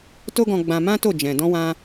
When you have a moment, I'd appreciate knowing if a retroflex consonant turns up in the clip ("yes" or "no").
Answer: no